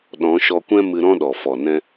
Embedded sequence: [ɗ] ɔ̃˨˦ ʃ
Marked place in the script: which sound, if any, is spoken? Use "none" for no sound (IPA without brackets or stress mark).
ɗ